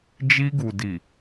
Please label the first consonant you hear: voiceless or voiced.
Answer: voiced